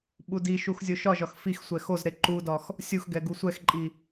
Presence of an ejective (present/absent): present